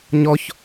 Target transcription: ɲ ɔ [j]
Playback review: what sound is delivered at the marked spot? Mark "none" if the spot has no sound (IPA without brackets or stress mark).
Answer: ç